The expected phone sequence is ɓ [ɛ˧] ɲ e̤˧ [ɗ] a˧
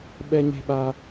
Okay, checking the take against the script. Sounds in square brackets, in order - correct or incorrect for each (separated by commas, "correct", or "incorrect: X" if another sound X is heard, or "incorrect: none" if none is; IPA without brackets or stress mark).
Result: correct, incorrect: ɓ